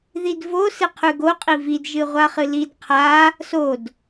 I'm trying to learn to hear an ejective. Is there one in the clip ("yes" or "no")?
yes